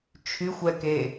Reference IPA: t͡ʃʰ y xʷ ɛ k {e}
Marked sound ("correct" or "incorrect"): correct